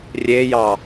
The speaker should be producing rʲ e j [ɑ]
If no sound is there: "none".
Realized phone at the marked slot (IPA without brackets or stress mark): ɑ